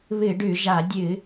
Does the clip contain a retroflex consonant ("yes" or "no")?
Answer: yes